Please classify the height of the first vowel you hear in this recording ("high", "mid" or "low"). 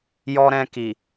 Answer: mid